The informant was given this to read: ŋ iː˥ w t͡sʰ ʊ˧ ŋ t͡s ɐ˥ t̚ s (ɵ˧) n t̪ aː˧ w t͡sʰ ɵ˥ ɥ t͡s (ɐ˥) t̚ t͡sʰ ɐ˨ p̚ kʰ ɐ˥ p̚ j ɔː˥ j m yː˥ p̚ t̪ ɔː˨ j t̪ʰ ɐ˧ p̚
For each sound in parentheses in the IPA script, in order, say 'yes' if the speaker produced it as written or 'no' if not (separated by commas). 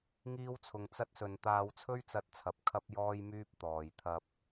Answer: yes, no